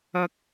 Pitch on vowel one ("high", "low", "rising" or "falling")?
high